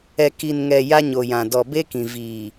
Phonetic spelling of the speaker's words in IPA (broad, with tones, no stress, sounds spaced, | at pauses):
ɛ˨ k i˨ n ŋ ɛ˨ j a˦ ɲ o˨ j ã˨ d ɔ˨ b e˦ k ĩ˨ v iː˨